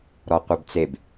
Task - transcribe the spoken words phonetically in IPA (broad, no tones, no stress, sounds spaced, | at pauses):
ɾ ɔ qʷ ɛ b t͡s e b